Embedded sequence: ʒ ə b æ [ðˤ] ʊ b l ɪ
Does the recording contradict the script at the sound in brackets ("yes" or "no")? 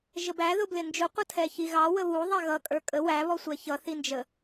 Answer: yes